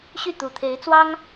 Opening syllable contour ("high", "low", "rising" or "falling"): falling